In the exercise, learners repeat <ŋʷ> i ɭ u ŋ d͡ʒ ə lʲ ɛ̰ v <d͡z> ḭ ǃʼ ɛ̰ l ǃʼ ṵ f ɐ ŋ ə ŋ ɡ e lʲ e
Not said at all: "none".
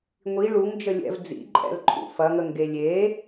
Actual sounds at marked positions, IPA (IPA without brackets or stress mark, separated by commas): ŋʷ, d͡z